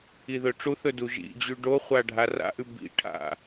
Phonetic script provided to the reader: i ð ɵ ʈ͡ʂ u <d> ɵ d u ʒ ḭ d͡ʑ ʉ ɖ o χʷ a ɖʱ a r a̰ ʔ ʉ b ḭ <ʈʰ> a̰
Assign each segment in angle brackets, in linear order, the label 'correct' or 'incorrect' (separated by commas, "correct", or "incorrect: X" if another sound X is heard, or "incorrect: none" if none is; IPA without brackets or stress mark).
incorrect: θ, correct